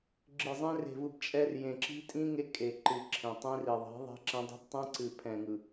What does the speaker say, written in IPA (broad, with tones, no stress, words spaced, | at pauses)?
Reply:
ɡ͡ǁɨ˨zˤẽ˦ re̤˨vɯ˨b t͡ʃʼɛ˦r jẽ˨ǁi̤˦tʼĩ˦ ŋe˦kʼe˨ǃɨ˨ ǁʰẽ˨tˤẽ˦ri˨ðˤi̤˨˦ ðˤɛ̤˦ǁɛ̃˦dˤi̤˦b tˤɛ̃˦ǀɨ˨ pʰɛ̃˨ŋɯ˨